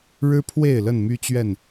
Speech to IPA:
ɻ ɻ̩˦ pʰ w e˥˨ ɪ̯ l ə˥˨ n m y˦ t͡ɕ ɥ ɛ˥˨ n

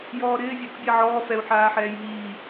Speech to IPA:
j ɔː ɾ ɪː vʲ ɛ ɾ ɔ̰ bʲ ɛ ʕ ɔː f ɛ u̯ ħ aː ħ ɛː j ɦ iː

